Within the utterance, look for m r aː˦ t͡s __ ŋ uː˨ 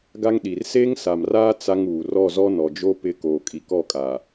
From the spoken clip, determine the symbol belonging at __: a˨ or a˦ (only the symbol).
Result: a˦